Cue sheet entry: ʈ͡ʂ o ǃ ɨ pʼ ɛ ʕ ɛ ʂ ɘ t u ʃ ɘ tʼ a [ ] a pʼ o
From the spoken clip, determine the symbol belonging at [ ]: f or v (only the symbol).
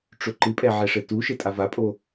v